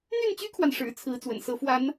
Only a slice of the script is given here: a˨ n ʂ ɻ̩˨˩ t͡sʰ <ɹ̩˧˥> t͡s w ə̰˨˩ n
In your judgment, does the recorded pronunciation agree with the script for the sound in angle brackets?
yes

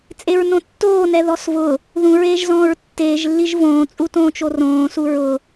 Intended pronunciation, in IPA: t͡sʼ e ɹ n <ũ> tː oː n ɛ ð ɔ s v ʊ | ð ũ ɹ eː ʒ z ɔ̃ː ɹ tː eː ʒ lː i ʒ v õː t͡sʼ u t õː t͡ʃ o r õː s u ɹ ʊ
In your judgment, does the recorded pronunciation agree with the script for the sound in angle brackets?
no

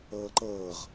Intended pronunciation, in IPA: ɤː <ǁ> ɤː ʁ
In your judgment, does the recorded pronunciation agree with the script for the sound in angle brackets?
no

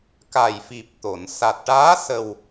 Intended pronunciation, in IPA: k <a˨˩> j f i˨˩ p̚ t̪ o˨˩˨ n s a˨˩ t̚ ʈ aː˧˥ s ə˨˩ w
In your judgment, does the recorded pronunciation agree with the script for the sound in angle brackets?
yes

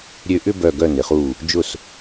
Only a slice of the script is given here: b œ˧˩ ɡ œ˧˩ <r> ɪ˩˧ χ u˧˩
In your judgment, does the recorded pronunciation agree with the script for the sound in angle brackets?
no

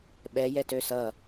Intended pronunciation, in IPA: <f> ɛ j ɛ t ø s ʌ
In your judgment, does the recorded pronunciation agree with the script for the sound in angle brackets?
no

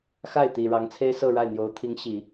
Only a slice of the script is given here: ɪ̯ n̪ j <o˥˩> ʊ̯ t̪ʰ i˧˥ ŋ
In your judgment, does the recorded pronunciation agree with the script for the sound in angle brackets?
no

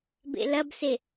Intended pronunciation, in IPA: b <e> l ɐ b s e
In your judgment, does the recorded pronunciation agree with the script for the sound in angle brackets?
no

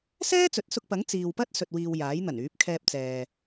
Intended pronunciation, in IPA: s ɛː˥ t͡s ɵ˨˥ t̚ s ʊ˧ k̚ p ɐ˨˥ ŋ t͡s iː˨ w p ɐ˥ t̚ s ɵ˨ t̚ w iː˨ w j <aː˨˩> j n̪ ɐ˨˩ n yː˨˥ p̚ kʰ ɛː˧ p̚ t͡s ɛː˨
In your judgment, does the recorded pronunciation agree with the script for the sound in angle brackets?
no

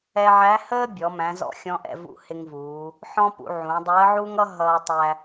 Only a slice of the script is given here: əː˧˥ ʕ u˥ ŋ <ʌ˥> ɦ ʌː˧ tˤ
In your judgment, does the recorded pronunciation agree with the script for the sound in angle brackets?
yes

